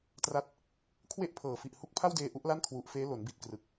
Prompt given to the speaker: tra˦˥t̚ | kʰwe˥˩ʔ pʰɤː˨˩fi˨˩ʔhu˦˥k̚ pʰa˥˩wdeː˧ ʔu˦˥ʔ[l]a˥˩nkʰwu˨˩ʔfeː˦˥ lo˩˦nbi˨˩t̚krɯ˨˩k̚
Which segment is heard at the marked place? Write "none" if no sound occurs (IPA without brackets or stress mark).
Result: l